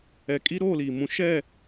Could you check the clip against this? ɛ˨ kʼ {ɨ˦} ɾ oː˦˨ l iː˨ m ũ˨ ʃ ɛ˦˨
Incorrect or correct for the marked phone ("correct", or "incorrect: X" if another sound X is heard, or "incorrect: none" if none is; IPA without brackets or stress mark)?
incorrect: i˦